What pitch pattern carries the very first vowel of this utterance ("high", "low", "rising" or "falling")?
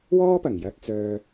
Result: high